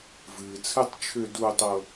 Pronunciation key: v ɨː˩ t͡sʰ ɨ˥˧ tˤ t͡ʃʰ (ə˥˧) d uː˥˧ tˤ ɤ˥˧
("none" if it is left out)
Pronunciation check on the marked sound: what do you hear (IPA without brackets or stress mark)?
ʏ˥˧